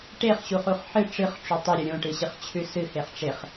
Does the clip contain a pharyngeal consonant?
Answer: yes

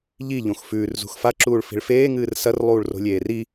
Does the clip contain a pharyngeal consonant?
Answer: no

